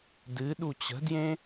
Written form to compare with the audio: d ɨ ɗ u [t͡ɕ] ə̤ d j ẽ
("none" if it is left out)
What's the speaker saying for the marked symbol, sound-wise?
t͡ɕ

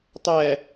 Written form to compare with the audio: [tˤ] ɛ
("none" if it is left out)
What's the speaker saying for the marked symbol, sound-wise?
tˤ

